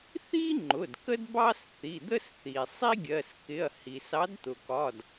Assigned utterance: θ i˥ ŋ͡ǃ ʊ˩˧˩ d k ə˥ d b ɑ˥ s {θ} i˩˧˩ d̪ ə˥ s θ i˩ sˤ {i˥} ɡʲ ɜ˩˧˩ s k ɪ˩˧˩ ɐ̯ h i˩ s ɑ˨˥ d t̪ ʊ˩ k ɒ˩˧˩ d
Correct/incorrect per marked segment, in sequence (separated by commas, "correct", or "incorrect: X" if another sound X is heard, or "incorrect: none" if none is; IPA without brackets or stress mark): correct, correct